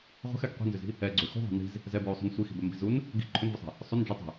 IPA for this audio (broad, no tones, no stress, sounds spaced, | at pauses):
ʁʷ ɛ̤ x ɛ ɡ qʷ i̤ n z ʏ z i̤ | ɛ ɡ͡ǀ ʏ x ṳ ðˤ ɛ̤ n i̤ z | z ɛ b ɹ u sˤ ṳ n sʷ i x i̤ b ɛ m b i̤ z u n | ɡ i̤ ǃʰ ʏ n v ʏ sˤ i̤ | sˤ ʏ n d͡ʒ ʏ tˤ ɛ̤